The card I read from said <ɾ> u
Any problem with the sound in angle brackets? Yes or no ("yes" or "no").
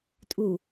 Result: yes